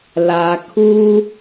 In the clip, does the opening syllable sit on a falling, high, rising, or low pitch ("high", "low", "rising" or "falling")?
low